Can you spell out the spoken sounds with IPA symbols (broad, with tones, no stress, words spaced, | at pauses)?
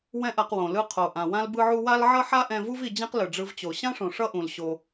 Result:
wɛ̃˥ʔa˧qwõ˩ lɯ˧qʰo˩ ʔã˩wã˥lbɯ˥ʕu˥ wa˥l ʕʌ˥ħa˥ʔɛ̃˧vu˥v i˧d͡ʑɛ̃˥qlɯ˩ ɖ͡ʐɯ˧vt͡ɕo˩ ɕã˥ʂõ˩ ʂʌ˥ ʔũ˩l ɕo˩